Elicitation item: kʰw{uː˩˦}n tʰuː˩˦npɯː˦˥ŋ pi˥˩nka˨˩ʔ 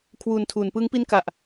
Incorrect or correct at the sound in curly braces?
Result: incorrect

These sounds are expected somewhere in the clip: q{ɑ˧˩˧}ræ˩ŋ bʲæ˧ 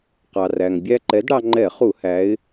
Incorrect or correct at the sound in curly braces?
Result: incorrect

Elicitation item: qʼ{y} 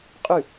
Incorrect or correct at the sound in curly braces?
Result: correct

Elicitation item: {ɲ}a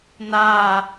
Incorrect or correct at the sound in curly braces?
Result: incorrect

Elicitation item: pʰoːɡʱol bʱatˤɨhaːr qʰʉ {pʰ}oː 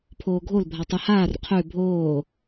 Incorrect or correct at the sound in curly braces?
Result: incorrect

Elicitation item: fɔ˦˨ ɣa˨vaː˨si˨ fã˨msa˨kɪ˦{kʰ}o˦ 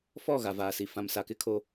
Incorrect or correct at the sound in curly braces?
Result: correct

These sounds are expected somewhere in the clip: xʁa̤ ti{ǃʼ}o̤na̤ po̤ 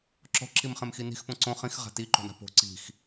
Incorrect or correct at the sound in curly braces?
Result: incorrect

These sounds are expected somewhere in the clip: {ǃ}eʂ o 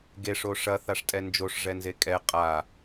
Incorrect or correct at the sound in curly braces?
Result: incorrect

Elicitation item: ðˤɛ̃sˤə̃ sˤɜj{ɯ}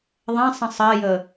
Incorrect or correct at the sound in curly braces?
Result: incorrect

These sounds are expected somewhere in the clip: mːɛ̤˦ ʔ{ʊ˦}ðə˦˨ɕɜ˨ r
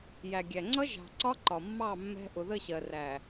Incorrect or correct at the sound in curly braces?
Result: incorrect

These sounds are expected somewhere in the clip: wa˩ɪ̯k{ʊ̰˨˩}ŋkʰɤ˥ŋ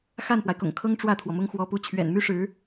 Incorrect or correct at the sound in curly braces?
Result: correct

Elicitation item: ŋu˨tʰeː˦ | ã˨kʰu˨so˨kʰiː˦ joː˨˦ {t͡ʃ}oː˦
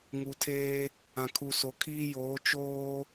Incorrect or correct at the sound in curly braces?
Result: correct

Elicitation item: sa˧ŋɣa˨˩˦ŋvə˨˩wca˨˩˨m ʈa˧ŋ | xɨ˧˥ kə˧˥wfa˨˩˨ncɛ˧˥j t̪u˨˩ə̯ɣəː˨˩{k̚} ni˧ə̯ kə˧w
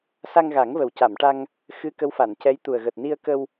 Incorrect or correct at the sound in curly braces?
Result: incorrect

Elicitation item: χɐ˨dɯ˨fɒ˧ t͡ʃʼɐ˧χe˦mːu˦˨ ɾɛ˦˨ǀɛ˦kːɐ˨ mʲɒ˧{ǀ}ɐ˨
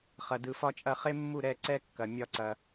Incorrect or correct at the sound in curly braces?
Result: correct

